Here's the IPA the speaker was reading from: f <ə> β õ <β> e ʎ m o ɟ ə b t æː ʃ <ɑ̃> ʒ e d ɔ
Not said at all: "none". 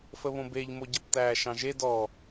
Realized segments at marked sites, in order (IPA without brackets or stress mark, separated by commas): ə, b, ɑ̃